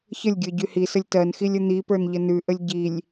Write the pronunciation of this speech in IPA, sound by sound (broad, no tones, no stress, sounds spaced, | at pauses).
ç ə lʲ ɡʲ ə˞ ɟ y h i s ə lʲ t ɜ n x i lʲ ə n̪ i p ə˞ n ʎ ə n ʉ ʔ ə lʲ ɟ i lʲ